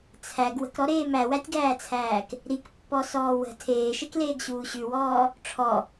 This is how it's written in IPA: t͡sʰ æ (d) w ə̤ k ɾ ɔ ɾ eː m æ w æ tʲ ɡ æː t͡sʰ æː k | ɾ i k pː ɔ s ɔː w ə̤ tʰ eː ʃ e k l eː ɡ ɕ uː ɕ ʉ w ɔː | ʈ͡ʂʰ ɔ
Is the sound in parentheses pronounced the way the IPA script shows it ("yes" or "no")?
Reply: no